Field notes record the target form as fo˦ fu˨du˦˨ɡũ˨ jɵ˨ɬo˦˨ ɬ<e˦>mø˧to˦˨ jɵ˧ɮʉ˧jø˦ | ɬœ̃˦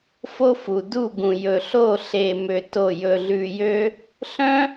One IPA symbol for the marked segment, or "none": e˧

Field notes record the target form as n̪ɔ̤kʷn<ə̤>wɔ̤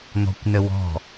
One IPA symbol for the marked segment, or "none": ə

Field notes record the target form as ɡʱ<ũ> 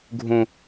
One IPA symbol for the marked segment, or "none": ũ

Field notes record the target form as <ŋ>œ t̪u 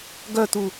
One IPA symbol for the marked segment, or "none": ɡ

